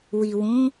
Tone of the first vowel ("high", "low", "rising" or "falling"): low